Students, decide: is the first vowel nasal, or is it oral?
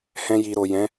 nasal